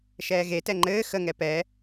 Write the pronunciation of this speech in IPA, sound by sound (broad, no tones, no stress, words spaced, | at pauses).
ʃɛːɣe tɛŋ͡ǃɘː xə ŋɛpɛ